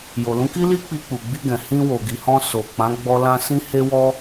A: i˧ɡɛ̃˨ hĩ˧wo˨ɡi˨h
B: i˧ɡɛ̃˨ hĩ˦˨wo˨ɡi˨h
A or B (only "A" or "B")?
A